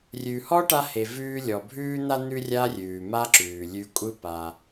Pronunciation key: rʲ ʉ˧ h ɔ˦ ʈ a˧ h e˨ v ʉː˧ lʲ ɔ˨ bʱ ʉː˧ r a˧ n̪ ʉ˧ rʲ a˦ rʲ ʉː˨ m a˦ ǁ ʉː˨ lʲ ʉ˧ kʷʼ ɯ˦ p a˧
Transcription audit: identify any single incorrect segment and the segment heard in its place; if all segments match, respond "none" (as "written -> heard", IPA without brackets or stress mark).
r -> n̪